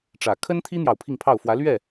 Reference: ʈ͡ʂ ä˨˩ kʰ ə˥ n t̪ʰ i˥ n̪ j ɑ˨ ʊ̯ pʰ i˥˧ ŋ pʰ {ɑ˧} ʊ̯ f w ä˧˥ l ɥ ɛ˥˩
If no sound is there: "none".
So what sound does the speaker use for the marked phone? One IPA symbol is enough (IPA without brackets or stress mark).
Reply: ɑ˥˩